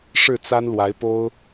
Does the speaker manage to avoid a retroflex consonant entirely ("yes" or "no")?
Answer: no